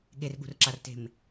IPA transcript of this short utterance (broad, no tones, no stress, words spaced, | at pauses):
ɠerɠṳrǁarte̤m